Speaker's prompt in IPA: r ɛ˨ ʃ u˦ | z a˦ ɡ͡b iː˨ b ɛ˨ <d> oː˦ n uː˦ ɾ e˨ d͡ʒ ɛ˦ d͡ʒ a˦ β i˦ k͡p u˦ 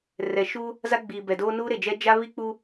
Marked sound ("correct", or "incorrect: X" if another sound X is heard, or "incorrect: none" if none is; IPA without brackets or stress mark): correct